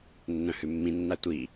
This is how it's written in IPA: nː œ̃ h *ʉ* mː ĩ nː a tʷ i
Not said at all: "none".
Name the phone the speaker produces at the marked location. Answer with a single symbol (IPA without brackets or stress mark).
ʉ